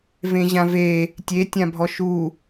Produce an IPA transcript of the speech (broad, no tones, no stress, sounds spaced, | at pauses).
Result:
v ẽ ʑ ã v e | tʲ e tʲ ã bʱ ɔ ʃ u